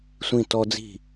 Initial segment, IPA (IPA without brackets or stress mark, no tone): sʷ